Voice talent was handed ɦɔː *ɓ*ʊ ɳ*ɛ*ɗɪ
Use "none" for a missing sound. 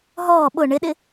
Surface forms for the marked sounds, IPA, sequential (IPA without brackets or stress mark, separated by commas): ɓ, ɪ